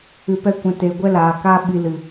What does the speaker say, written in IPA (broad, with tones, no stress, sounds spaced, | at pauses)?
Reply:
ɨ˨ p ɛ˧ kʷ ɛ̃˨ t eː˨ ɡʷ ɛ˦ l aː˨ k a˦ ɓ i˧ l ɨ˨